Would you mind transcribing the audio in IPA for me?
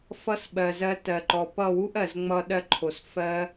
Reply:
fʌ˦s ɓɜ˨zɜ˧ tɜ˨ǃɔ˨ pʌ˦˨wu˦ʔɜ˨z ŋ͡mʌ˦ ɗɜ˦ǃʰo˨s fɜ˦

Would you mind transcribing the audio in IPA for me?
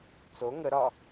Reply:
t͡so ŋə ɾɒ

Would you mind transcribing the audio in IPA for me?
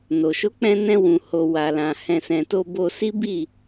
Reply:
no˨ ʃo˨˦k͡pɛ̃˧nɛ̃˧ wũ˨ho˨ wa˨lã˨ hɛ̃˨sɛ̃˨to˧ bo˧si˦ bi˦˨

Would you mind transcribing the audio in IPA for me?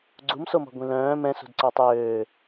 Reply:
ɡ͡ǀumsomɔ̤ ɡʷĩlœ̃ː mɛ̃ sṳdǀɔtˤøː

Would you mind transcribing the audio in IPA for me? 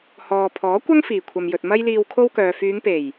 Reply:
hɔː˨ pʰɔː˨˥kʷɐ˥ŋ fiː˨˩kʷʰɐ˨mjɵ˨t̚ mɐ˥jliː˧wkʰo˥wkœː˨ fyː˨˧ŋpe˨˩j

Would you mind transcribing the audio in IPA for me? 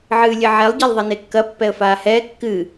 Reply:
ʕɨːlʲɘʕɛlˠ ɟelˠðˤɐnekːɐ pːɛə̯faːhɛː kːɨ

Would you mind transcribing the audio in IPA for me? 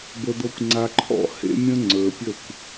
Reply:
bə˨d̪ɤ˨kʷ ŋ͡ǀa˨ǃʰɔ̰˦˨ hḛ˦mʲə̃˦ ŋ͡ǀə˞˨pʲə˦˨kʷ

